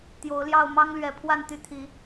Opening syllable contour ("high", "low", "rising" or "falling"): rising